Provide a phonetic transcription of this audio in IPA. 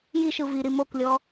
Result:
j i ʃ ɯ v i ɾ i m o k lʲ ɔ

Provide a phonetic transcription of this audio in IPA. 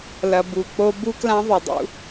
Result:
l ɐ˨ b u˨ k͡p o˦ b u˦ k l ã˦ ðˤ ɨ˨ dˤ ṵ˦

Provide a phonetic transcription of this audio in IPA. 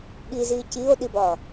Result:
ɠ i z iː c i o̯ ɗ i b ɒː

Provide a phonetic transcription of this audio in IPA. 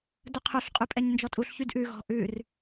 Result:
d ɵ qʰ ɵ ɬ qʼ ʉ pʼ ɛ ɲ n d͡ʒ ɔ tʼ u ɬ ç y d ʔ ʉ ɣ ɔ̤ ʔ ʉ r

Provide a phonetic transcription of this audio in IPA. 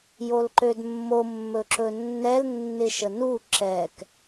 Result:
j o l ǃ ø d mː o mː ɵ ǁ ɵ nː ɛ l nː ɪ ʃ ə n u ǁ ɛ k

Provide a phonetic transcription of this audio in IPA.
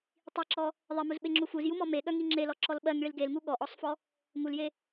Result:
tˤ i ǁ ɔ | ðˤ e m u z ɓ e ŋ͡ǁ u f u z j u m ɔ m e ɠ œ ŋ i ŋ͡ǁ e l ɔ ǁ ɔ l ɓ ɜ ŋ ɭ i l ɡ e l ŋ u ɠ ɔ ʔ ɔ sˤ f ɔ | ŋ u l j e

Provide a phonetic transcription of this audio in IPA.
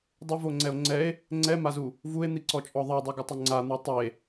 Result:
dˤ ʊ v o ŋ͡ǀ ɛ o̯ ŋ͡ǀ ɛ e̯ | ŋ͡ǀ ɛ m a z u | v u e̯ n̪ i ǀ ɔ t͡ʃʼ ɔ ðˤ ɛ dˤ u ɡ ʊ tˤ ʊ ŋ͡ǀ a n̪ u tˤ e

